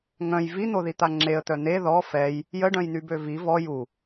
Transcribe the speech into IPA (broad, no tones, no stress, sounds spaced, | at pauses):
ŋ œ̃ j v i n̪ o ð i t̪ a ŋ͡ǁ e ə̯ t̪ œ n̪ e ð ɔ f ɛ j | j ə ɖ œ̃ j n̪ y b ø v i v ɔ j u